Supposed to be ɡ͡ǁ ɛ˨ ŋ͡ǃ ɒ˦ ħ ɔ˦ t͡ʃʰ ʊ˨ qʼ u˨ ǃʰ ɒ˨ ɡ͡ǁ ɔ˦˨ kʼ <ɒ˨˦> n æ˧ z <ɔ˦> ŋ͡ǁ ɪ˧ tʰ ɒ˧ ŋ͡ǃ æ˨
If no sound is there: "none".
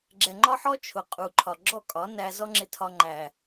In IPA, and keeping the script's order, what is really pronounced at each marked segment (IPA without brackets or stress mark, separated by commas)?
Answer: ɒ˨˦, ɔ˦